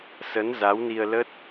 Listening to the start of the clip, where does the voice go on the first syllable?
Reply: rising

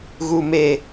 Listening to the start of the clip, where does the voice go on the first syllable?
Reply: low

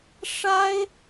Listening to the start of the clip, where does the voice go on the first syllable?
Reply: high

